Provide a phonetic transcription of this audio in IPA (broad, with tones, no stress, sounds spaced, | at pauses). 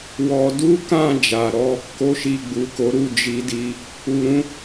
w ɔ˧ d u˦ k ã˦˨ d͡ʒ a˨ ɾ ɔ˧ | k o˦ ʃ i˧ ɡ͡b u˨ k o˨˦ ɾ u˦˨ d͡ʒ i˨˦ d i˧ | u˧ ɾ ũ˦